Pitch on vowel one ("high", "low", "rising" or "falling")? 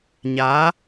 rising